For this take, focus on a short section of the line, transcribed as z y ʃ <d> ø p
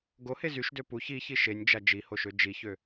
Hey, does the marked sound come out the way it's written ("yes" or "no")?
yes